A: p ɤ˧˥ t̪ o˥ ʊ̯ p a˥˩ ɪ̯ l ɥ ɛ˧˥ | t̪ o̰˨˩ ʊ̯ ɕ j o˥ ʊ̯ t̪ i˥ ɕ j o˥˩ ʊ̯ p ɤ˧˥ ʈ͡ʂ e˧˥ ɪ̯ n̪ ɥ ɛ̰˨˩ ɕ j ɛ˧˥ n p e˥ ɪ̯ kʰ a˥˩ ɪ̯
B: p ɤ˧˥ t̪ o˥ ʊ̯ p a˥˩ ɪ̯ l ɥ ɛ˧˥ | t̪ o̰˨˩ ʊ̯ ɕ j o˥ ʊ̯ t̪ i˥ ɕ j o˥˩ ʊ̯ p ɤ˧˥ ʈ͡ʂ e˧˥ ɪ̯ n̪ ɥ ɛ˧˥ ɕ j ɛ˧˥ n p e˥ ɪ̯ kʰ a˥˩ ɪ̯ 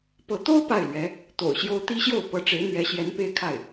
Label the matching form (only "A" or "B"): B